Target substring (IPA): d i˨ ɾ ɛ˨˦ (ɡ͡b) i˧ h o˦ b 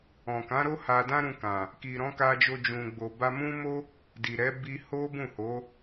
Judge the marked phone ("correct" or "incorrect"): incorrect